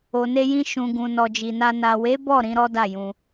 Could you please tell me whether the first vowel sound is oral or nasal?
oral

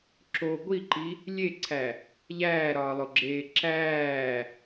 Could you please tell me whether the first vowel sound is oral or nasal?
oral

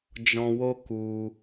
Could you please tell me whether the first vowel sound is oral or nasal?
nasal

